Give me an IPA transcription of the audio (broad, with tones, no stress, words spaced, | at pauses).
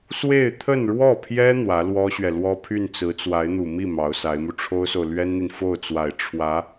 swe˥˧ɪ̯t̪ʰə˥˧nɻwɔ˥˩pʰjɛ˥ n̪wä˧˥lwɔ˥ɕɥɛ˨ lwɔ˥pʰy˥˩n t͡sɹ̩˧˥t͡swa˧˥ɪ̯n̪u˨˩ mi˥˩ mɑ˧˥ʊ̯sa˧˥ɪ̯mu˧ ʈ͡ʂʰo˥ʊ̯so˨ʊ̯ lɥɛ˥nn̪i˨n fo˥˩ʊ̯t͡swa˨˩ɪ̯ ʈ͡ʂʰwä˧˥